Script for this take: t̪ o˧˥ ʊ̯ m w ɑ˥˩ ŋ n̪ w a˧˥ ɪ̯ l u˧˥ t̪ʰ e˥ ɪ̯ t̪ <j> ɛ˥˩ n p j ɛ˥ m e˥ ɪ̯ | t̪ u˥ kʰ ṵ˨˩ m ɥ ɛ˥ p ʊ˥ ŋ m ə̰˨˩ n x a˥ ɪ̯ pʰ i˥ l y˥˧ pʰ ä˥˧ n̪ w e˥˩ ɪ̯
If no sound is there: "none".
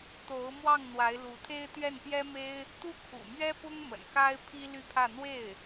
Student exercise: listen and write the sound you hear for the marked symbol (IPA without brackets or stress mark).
ɥ